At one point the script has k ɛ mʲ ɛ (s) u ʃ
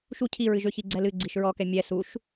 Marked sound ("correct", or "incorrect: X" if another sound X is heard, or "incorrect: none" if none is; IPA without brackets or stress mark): correct